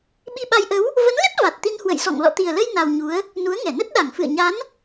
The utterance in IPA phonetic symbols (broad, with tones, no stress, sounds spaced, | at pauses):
ɓ i˧ ɓ a˧ j ʔ ə˨˦ w | v ə˨˦ n l ə˦˥ t̚ v a˨˩ t̚ t̪ i˧ n h w ə̰˧˨ j s ɔ̰˧˨ ŋ l ɔ̰˧˨ t̪ i˨˩ ə̯ l ə˧ j n a˧ w ɲ u˨˦ ə̯ | n u˨˦ ə̯ ŋ ɛ˧˩ n ə˦˥ t̚ ɗ a˧˩ ŋ f ɨ̰˧˨ ə̯ ɲ a˨˦ n